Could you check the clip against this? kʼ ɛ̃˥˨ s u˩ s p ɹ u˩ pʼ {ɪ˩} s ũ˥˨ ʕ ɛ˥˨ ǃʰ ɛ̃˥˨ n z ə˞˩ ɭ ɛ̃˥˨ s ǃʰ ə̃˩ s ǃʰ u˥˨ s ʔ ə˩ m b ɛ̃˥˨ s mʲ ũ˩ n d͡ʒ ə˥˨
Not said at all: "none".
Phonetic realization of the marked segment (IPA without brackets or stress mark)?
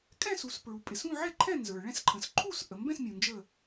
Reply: ɪ˩